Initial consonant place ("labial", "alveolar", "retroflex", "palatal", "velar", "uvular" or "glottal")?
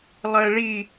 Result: alveolar